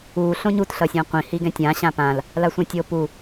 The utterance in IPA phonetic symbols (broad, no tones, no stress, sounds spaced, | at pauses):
u ɬ õ ɲ u t ɬ ʌ sʲ ã qʷ ĩ h i ɡ ɛ̃ tʲ ã ɕ ã p ã l | l a sʷ ã tʲ o p u